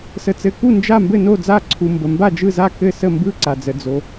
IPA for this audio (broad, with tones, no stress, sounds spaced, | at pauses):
s ə˨ t͡s ɘ˨ k u˥˩ n d͡ʒ a˥˩ m b ɘ˥˩ n o˥˩ d͡z a˥˩ ǀʰ u˨ m b ə˨ m b a˥˩ d͡ʒ ɯ˥˩ z a˥˩ k ɘ˥˩ s ə˥˩ m b ɯ˥˩ ǀ a˨ d͡z ə˨ d͡z o˨